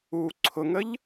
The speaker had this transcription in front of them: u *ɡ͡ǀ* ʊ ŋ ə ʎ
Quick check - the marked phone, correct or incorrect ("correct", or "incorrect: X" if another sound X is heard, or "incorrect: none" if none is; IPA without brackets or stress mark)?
incorrect: ǀʰ